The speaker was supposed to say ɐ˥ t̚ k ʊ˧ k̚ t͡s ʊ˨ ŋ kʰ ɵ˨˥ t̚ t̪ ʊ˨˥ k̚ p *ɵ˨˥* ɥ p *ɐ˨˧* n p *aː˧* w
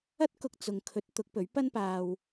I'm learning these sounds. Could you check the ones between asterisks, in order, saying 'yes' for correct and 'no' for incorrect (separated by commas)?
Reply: yes, no, yes